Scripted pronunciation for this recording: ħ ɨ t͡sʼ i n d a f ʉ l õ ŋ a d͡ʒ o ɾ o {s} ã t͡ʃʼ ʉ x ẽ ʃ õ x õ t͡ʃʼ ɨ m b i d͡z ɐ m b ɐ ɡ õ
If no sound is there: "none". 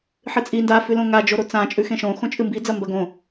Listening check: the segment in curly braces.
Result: t͡s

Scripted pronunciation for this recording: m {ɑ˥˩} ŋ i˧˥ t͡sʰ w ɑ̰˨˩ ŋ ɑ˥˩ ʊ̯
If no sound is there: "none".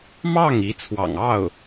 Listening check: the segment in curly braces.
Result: ɑ˥˩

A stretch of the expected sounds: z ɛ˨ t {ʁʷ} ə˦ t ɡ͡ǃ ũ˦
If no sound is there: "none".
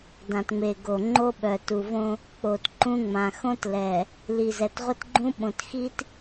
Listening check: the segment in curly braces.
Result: ʁʷ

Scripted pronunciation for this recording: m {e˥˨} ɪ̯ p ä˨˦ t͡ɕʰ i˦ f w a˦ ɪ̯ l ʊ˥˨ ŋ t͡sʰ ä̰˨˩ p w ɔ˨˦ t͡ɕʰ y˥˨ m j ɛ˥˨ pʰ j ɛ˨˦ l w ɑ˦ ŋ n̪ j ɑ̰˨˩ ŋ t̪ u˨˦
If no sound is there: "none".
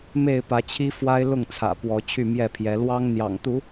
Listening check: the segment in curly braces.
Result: e˥˨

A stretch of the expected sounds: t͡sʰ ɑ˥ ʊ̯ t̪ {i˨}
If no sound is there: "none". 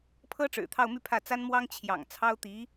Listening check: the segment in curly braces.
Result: i˧˥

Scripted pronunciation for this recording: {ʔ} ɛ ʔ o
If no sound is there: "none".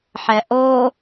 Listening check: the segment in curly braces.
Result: ħ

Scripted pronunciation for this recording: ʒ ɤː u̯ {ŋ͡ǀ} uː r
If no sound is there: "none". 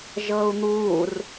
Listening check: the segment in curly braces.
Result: n̪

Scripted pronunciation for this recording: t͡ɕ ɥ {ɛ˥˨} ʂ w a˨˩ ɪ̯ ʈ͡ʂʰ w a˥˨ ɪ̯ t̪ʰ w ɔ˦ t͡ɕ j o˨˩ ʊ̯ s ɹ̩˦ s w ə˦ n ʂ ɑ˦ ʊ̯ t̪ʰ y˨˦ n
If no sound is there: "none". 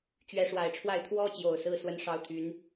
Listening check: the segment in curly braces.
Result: ɛ˨˦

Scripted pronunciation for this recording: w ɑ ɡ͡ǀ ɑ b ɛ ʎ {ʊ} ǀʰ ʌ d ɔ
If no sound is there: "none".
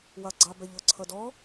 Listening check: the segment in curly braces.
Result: ʊ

